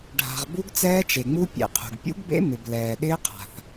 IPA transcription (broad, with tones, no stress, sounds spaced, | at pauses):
ɖʱ a̤˩ ʁ b u˦˥ ɡ t͡s ɛː˦˥ t͡ʃ e˩ ŋ͡m u˦˥ pʲ ḛ˩ qʰ ṳ˩ ɡ pʲ ṵ˦˥ ɡ b ḛ˦˥ m ɪ˩ b l ɛː˩ ɗ ɪː˦˥ qʰ a̤˩ θ